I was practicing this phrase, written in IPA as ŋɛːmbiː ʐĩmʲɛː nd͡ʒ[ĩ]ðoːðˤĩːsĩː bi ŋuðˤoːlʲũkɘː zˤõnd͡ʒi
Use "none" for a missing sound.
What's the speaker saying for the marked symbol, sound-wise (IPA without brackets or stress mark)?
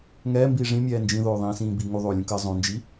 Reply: ĩ